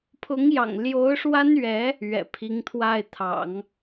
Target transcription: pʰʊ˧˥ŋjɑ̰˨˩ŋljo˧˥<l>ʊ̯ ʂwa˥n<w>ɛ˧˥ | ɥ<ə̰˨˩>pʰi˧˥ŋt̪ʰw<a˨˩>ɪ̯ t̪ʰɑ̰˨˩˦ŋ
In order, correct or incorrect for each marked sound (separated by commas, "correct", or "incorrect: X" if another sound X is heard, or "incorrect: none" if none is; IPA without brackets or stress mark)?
incorrect: none, incorrect: ɥ, incorrect: ɛ̰˨˩, incorrect: a˥˩